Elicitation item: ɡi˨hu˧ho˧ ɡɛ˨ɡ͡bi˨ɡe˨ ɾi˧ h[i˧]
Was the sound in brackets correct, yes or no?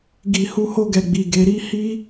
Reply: yes